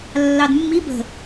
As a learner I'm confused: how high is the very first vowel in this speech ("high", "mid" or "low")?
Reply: low